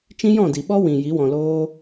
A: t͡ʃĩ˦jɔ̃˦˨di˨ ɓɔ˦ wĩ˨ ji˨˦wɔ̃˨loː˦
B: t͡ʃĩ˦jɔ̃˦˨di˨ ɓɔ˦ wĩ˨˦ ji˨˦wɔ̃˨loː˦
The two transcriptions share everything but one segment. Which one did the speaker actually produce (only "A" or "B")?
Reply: A